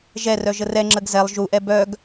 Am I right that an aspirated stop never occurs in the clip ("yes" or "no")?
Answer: yes